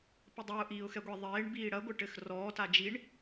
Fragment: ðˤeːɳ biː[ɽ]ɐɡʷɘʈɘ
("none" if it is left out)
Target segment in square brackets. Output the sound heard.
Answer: ɽ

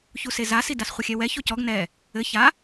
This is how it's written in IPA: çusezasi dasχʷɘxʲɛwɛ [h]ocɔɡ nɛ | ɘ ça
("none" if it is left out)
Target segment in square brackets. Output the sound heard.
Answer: ç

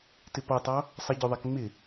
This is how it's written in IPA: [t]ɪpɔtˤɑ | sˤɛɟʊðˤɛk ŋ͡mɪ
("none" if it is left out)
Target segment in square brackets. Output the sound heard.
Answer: t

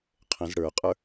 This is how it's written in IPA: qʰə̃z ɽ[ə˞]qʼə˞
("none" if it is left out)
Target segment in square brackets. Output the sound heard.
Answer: ə˞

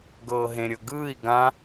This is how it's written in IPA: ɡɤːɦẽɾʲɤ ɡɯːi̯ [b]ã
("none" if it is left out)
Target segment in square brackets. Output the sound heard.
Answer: ɡ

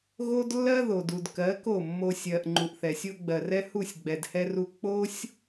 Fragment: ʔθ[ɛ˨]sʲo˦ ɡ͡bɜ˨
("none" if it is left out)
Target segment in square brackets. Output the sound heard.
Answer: ɛ˨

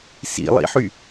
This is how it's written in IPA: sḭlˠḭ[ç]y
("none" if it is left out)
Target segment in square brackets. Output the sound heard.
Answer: ħ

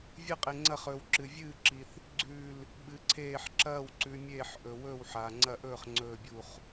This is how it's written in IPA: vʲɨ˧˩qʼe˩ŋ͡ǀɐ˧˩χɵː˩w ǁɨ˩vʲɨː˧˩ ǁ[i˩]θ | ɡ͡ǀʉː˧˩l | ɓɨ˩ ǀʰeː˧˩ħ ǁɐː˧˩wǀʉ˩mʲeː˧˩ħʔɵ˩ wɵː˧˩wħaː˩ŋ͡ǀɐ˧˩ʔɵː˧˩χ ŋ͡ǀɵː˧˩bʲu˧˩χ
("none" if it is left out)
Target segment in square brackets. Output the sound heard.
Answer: i˩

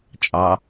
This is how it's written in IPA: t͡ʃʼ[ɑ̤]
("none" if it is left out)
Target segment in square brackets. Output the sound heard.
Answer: ɑ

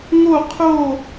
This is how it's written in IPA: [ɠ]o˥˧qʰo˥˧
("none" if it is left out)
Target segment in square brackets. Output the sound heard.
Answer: ŋ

